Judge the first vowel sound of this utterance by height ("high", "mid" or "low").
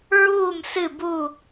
high